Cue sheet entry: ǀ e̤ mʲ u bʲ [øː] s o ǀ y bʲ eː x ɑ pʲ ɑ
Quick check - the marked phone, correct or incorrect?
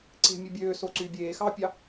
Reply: correct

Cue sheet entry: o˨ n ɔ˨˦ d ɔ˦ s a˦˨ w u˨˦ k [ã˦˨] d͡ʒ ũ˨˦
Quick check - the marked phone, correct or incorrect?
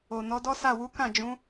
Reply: correct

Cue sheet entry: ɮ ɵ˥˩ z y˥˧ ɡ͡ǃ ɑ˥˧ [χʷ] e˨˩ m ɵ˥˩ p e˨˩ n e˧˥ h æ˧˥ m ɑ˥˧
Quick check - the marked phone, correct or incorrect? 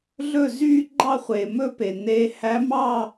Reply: correct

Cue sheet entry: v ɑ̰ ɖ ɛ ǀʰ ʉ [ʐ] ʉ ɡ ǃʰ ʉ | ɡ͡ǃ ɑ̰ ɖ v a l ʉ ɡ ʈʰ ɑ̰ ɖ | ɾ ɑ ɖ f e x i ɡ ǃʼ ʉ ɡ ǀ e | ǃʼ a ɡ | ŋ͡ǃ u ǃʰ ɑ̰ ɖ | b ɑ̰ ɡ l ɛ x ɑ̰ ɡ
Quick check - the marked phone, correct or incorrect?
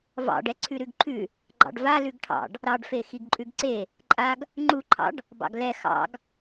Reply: incorrect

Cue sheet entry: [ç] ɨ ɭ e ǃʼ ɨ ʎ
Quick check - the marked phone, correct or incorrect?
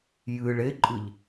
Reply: incorrect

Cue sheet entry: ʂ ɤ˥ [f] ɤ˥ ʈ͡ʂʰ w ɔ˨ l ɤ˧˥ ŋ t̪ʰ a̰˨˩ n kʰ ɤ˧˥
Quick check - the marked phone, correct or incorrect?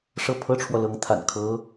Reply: incorrect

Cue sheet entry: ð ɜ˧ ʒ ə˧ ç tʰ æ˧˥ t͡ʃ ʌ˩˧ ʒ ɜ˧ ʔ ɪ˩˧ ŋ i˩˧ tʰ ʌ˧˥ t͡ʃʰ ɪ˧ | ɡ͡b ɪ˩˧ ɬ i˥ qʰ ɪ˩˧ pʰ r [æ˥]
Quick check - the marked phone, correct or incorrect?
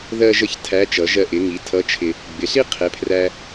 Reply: incorrect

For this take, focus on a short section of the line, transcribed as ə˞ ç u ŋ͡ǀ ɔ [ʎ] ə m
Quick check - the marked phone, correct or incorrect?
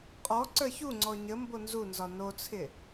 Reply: incorrect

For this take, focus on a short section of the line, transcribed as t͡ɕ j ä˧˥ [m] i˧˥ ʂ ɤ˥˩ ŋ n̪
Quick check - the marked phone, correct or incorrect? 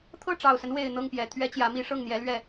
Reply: correct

